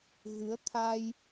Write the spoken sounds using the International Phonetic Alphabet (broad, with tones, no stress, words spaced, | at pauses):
ɣɨ˨˦ə̯t̪ʰa˧j